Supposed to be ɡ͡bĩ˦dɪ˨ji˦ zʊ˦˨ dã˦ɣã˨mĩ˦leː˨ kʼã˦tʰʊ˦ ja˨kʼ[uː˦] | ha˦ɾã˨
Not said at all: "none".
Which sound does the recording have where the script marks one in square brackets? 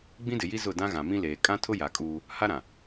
uː˦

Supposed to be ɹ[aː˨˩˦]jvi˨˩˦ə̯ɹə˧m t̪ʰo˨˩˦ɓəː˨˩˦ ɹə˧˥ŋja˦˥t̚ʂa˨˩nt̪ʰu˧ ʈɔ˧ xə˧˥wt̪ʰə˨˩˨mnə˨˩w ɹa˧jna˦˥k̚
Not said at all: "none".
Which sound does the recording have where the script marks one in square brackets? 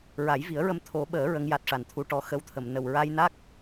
a˨˩˦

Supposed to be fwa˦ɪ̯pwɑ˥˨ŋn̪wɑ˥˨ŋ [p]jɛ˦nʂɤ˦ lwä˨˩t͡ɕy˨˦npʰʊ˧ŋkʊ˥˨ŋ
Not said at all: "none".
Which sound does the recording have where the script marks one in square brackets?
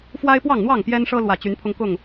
p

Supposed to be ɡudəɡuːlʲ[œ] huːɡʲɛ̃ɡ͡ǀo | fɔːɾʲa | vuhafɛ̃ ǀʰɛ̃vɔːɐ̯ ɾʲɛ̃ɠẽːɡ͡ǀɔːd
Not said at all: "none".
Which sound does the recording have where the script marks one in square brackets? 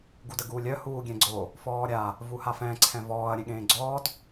œ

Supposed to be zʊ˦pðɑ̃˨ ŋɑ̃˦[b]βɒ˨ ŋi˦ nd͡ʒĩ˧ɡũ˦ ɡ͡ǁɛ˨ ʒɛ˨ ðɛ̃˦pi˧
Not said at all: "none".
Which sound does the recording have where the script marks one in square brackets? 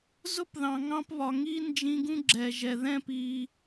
p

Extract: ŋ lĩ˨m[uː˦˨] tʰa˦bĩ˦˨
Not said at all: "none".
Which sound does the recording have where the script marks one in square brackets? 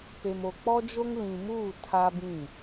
uː˦˨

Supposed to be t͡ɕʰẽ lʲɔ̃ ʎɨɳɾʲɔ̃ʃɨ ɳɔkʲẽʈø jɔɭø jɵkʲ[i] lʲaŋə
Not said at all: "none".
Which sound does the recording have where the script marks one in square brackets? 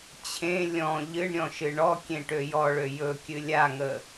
ɨ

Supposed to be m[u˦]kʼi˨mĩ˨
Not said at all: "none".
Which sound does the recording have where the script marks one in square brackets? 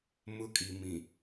ʊ˦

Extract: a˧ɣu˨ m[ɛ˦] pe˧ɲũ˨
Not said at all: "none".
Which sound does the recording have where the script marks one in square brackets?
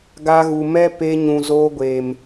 ɛ˦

